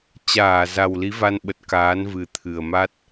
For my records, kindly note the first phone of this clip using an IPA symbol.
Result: t͡ɕ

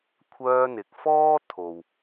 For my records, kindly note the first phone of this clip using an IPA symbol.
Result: kʷʰ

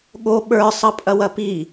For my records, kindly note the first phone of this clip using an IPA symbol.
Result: ɠ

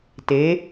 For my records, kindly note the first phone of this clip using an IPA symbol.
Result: t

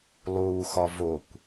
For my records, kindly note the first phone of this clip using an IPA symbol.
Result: lˠ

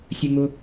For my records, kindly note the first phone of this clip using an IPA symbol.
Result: sʲ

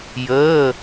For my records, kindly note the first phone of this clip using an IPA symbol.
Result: j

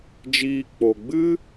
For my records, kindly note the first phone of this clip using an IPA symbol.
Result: d͡ʒ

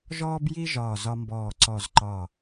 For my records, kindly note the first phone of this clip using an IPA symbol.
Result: ʒ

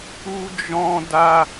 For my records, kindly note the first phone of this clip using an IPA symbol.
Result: u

